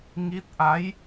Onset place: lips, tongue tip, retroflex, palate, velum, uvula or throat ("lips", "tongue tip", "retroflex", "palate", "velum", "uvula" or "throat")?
velum